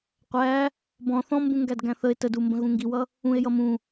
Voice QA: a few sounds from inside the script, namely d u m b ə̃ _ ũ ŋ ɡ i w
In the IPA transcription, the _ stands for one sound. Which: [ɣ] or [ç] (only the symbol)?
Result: ɣ